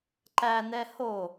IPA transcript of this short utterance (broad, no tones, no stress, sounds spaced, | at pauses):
ǃ æ n ɛ h o